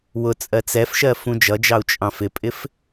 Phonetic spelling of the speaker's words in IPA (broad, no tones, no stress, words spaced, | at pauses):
wʊt͡sʼɜ t͡sɛfʃɜ fũd͡ʒʌd͡ʒɑu̯ t͡ʃʼɑ̃fɪpʼɪf